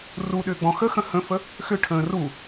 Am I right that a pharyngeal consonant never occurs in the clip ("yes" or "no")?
yes